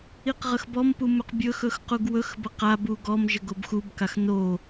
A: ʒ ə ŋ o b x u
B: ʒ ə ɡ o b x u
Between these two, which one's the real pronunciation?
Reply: B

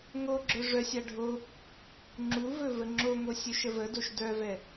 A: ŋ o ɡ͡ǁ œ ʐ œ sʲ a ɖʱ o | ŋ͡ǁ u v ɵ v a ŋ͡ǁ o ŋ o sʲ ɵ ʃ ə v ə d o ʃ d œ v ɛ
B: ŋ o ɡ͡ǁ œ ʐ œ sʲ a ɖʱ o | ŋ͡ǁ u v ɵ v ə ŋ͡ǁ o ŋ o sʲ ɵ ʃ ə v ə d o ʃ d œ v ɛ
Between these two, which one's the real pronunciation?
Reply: B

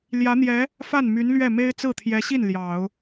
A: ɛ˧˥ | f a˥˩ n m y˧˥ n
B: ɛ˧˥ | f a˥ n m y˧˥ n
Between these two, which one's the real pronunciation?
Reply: A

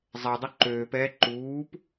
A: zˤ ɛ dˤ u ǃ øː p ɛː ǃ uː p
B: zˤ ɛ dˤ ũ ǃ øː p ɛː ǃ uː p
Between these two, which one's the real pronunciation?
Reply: A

